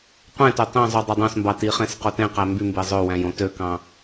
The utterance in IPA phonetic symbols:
qʷ ẽ t ø tˤ ĩ zˤ u dˤ ø dˤ õ s m b ɑ t i χ ẽ s q o t ẽ q æ m b y m b e zˤ ø w æ̃ j õ t ø k ɑ̃

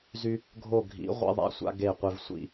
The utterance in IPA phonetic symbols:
z y˦ | ɡʱ o˦˨ ɡʱ ḭ˨˥ ʁʷ ḛ˦ ðˤ a̰˦ sʷ a̰˦ ɡ e˦˨ qʷ e˦ v sʷ ḭ˦

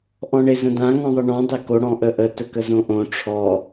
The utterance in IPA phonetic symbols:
ʔ ɔ̃ ɳ e z ə̃ d ã ŋ ɔ̃ ðˤ ə ɳ ɔ̃ dˤ e k o ɽ ɔ̃ ʔ ə ʔ ə t ə k ə z õ ʔ õ ʈ͡ʂʰ ɔ

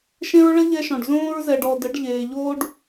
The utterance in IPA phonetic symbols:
ʃ ẽ˦ ɹ ɭ ə˦ ʎ ɛ˧ ʃ ɔ̃˨ ɖ z õː˧ ɹ z ɛ˨ ɖ ɔ˨ d ə˨˦ ɖ ʎ eː˨ ʎ oː˦ ɖ

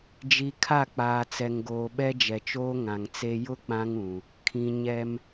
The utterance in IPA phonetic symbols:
d͡ʒ i˨ kʰ a˦˨ k͡p aː˨ t͡s ɛ˨ ŋ ɡ oː˨ ɓ ɛ˦ d͡ʒ ɛ˨ t͡ʃ oː˦ ŋ ã˨ ŋ t͡s e˦ j ʊ˦ k͡p ã˦ ŋ ũ˨ | kʰ ĩ˨ ɲ ɛ˦ m

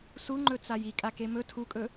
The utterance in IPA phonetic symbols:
s u ŋ͡ǃ ɵ t͡s a j i kʼ a k e m ɵ tʰ u kʼ ɵ

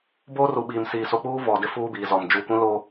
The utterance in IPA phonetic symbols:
b oː˦ r u˨ ɓ iː˨ m s iː˨ s o˨ k͡p uː˦ v ɔ˨ d ɪ˦ f uː˦ b iː˨ z ɔ˨ m d͡ʒ u˨ kʷ ĩ˦ l o˦

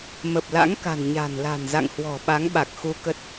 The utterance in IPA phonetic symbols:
m ə˨˩ p̚ l a̰˧˥ ŋ k a̤˨˩ n ɲ a̤˨˩ n l a̤˨˩ n z a̰˧˨ ŋ h w ɔ̤˨˩ ɓ a˨˦ ŋ ɓ a˨˩ k̚ x u˧ k ə˦˥ t̚

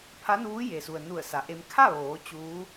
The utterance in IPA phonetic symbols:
pʰ a˧˥ n uː˧˥ j e˩ s u˩ ə̯ n u˧˩ ə̯ s a˩ ʔ e˧ m kʰ a˥˨ ʋ oː˩˧ t͡ɕ uː˧˥

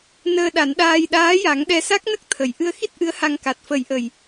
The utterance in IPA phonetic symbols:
n əː˧ ɗ a˨˩˦ n ɗ aː˧ j ɗ aː˧˥ j a˨˩˦ ŋ ɗ ɛ˧ s a˦˥ k̚ n ə˦˥ k̚ t̪ʰ ə˨˩ j ʔ ɨ˧ ə̯ x i˦˥ t̚ ʔ ɨ˧˥ ə̯ h a˧ ŋ k a˨˩ t̚ f ə˨˩˦ j ʔ ə˨˩ j

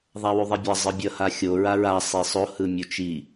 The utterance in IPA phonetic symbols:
ðˤ a w u ðˤ ɛ bʲ ʌ zˤ ɯ bʲ ʌ h a xʲ o ɹ a ɹ a sˤ e sˤ o h ɯ mʲ u t͡ʃ i

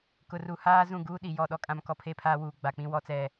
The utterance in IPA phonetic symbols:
k ʊ˨ r u˨ h aː˦ z ũ˦˨ ɡ uː˦ ɗ i˨ j ɔ˦˨ ɗ ɔ˦ kʼ ã˦ m k ɔ˦ pʰ e˦˨ pʰ aː˦ w uː˨ ɡ͡b a˨ k͡p ĩ˦ w ɔ˦ t͡s ɛ˦˨

